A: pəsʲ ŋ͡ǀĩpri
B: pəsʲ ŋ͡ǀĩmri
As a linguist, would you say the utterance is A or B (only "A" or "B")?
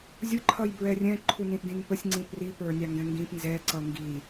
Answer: A